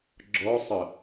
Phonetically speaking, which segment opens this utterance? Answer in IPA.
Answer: ɡ͡ǁ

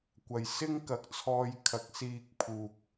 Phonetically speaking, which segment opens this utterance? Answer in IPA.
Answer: kʷ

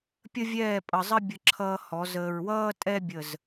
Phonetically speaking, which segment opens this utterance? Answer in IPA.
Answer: pʲ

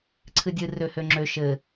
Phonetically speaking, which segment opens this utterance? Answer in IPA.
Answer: ǀʰ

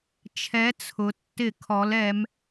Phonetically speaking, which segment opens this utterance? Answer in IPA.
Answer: t͡ʃʰ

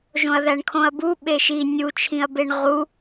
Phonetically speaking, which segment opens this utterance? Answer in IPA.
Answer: ʒ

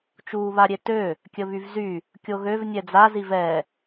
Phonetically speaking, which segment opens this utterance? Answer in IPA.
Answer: t͡ʃ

